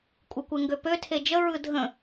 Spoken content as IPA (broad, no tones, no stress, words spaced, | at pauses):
kʷʼɯkʷeŋɡøpø tʰed͡ʒə ɹɯdʱə̃